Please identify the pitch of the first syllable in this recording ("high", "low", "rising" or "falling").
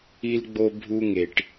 high